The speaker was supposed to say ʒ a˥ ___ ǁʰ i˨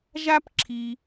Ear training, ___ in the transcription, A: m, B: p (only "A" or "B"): B